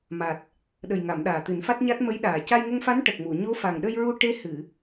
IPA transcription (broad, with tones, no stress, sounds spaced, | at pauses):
m a˨˩ t̚ | ɗ ə˨˩ j ŋ a˨˩˨ m ɗ aː˨˩ t̪ ɨ˨˩˦ n f a˦˥ t̚ ɲ a˦˥ t̚ m ə˧˥ j ɗ aː˨˩ c a˧ j ŋ ə˧ ŋ f a˧˥ n ʈ ə˨˩ k̚ m u˨˩˨ ɲ o˧˥ f a˨˩ ŋ ɗ ə˧ j ɹ u˧ ʈ e˧ h ɨ˨˩˨